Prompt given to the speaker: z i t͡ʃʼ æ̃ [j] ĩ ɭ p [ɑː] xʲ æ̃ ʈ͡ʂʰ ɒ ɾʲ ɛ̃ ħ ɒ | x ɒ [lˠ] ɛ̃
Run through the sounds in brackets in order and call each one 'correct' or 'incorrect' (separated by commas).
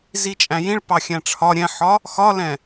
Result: correct, incorrect, incorrect